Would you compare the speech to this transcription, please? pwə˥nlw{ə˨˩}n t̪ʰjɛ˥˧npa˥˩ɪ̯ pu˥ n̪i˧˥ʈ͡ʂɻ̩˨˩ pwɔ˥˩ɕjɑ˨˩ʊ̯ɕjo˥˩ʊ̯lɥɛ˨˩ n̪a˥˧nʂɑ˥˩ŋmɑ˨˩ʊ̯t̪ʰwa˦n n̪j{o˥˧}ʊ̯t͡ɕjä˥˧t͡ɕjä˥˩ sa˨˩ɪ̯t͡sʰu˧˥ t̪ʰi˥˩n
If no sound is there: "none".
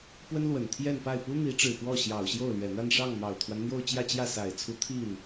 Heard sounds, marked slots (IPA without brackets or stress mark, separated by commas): ə˨˩, o˥˧